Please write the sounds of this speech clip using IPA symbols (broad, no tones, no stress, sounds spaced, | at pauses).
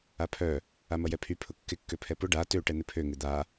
a pʰ œ | a m ɐ j ɛ pʰ y pʰ ʊ kː ɪ kː ø pʰ ɛ p ʊ ɖ a t ø ʈ ɛ n̪ ɪ pʰ ø ŋ ɪ d̪ a